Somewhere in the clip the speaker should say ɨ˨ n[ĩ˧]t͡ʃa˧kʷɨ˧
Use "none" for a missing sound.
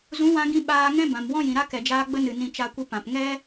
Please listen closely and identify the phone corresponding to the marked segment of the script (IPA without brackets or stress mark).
ĩ˧